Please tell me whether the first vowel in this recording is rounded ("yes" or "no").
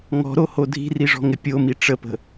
yes